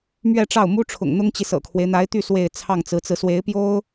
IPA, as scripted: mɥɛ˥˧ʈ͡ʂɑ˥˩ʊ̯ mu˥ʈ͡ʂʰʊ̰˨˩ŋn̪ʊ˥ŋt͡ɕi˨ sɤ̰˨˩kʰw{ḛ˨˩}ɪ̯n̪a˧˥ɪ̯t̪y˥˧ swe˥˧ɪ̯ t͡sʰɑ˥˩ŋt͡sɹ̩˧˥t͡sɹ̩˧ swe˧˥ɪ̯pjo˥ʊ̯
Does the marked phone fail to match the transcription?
yes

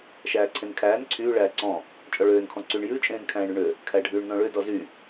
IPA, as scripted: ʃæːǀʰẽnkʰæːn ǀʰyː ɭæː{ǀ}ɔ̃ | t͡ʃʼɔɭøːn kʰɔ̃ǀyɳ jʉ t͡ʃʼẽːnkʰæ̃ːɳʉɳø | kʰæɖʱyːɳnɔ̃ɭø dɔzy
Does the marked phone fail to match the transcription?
no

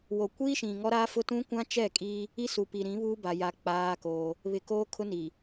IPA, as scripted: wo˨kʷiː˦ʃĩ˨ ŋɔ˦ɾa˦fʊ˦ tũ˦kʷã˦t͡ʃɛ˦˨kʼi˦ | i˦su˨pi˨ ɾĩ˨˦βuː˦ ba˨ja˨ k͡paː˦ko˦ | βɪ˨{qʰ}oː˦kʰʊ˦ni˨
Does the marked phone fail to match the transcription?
yes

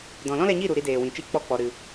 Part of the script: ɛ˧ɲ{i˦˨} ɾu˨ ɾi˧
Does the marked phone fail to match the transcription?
no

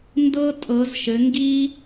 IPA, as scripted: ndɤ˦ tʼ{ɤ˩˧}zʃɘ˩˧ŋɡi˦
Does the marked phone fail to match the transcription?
no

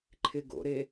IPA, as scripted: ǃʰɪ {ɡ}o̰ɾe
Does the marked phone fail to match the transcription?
no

